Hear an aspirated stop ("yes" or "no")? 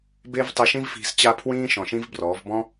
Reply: yes